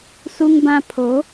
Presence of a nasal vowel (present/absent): present